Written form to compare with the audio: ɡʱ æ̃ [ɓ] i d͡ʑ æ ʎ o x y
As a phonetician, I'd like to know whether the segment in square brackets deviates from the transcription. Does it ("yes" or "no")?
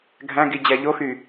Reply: yes